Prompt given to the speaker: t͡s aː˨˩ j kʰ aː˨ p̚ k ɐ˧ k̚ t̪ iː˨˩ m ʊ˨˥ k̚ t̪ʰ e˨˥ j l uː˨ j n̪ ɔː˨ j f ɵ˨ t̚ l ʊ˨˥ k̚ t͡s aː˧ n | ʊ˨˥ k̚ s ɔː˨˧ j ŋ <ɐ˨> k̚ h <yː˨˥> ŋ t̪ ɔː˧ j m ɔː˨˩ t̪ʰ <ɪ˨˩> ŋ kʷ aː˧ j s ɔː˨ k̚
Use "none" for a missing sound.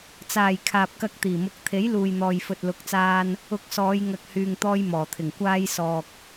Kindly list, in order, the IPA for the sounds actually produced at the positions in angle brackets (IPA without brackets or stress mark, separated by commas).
ɐ˨, yː˨, ɪ˨˩